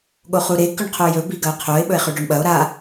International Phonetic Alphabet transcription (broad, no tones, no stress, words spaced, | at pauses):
ɠoχuɾe kʉɳqʰojɵ biɡɐo̯qʰoe̯ ɓɵe̯χʉɖoɳɓɐo̯ ɾa